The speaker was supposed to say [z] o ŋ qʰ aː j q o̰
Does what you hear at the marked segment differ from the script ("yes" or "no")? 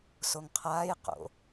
yes